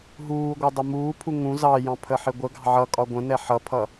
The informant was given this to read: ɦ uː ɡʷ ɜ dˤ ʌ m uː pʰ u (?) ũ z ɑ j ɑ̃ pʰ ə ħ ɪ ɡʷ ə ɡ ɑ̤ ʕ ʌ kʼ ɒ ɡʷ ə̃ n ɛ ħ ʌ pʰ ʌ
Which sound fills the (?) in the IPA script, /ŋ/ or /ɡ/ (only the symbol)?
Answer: ŋ